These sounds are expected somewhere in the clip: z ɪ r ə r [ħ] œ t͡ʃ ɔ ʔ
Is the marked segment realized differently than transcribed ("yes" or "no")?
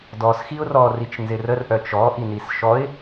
yes